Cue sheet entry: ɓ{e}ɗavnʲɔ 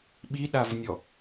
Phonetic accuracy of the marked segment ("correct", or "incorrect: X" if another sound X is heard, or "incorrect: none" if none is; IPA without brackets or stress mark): incorrect: i